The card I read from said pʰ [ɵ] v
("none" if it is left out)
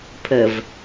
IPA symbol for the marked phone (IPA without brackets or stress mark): ə